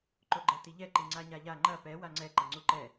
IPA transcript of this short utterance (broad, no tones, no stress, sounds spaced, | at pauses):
ǃ o ɡ͡ǃ ɛ t i ʎ ɛ ǃ i ŋ͡ǀ a ɲ a ʎ a ŋ͡ǃ ɐ p ɛ w a ŋ͡ǀ ɛ ǃ ɐ ŋ͡ǀ u ǃ ɛ